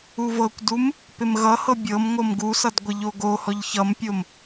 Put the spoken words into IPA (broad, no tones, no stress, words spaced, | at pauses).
uvɤkʷdum | pɪmɣʌhɤ bʲɤm ŋʷɤmɡusʌd ɡʷɪʎoɡohɔʎ çʌmpʲom